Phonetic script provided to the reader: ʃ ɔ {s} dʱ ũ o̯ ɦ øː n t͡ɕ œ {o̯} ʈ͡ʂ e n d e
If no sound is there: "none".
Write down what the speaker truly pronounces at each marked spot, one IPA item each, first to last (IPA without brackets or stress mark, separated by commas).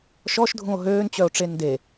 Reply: ʃ, o̯